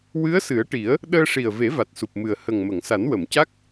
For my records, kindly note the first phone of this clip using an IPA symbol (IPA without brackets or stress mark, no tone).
w